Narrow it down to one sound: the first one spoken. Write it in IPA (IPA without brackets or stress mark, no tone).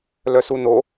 l